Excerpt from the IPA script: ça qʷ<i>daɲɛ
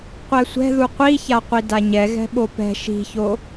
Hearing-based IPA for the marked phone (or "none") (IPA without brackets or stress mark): i